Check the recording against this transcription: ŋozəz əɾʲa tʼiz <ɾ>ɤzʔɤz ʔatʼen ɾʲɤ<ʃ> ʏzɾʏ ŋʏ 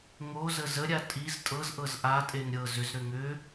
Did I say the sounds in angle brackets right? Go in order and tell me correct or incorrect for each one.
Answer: incorrect, incorrect

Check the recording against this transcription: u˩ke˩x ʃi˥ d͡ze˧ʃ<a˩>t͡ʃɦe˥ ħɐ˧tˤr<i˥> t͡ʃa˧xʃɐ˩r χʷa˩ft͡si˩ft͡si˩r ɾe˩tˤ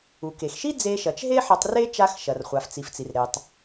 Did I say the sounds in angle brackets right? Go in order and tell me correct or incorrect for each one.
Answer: incorrect, incorrect

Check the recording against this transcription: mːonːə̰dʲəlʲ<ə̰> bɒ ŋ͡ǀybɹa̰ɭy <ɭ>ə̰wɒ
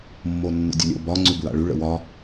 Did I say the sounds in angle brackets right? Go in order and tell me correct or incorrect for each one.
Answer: correct, correct

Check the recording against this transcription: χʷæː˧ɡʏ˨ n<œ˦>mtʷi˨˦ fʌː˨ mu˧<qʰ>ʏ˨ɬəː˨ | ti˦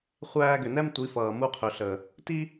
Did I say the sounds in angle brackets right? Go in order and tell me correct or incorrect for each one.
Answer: incorrect, correct

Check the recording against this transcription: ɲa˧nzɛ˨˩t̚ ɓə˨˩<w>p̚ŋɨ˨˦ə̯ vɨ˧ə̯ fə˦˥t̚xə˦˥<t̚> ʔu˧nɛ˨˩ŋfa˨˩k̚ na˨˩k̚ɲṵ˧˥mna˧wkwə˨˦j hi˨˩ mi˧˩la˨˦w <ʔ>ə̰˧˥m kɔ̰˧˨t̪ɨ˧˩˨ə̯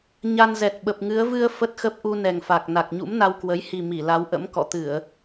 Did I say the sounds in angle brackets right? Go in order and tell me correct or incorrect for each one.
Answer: incorrect, incorrect, correct

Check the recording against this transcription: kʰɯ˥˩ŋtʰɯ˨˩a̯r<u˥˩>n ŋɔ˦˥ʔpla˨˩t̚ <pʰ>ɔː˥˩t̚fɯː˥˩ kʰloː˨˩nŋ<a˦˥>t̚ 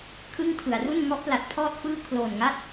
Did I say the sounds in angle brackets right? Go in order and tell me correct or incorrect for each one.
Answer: correct, correct, correct

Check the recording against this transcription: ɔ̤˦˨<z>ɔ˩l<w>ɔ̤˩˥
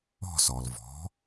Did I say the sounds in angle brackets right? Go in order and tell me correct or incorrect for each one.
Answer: incorrect, incorrect

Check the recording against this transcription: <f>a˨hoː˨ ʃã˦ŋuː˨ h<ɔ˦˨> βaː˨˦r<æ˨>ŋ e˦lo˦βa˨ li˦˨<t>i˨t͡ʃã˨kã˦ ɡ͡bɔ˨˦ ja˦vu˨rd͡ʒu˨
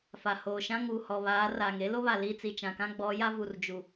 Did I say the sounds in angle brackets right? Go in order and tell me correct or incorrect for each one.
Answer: correct, incorrect, incorrect, incorrect

